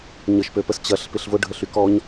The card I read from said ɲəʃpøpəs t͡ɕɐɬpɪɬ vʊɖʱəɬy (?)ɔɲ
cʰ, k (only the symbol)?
k